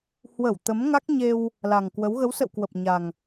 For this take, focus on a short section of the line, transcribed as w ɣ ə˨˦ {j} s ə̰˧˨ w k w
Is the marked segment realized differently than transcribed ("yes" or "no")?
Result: yes